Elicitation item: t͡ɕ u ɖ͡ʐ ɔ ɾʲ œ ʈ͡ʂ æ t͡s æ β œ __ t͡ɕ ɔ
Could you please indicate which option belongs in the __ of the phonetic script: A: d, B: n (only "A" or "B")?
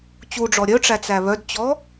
A